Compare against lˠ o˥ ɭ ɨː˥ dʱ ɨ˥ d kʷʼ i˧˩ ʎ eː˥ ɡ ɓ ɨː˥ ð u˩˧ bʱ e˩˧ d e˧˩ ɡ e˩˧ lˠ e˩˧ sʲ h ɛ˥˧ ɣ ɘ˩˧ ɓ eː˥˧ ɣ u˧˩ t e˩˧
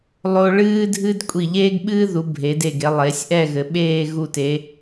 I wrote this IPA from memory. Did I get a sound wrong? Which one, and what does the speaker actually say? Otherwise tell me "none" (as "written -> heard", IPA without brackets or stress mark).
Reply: h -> ʔ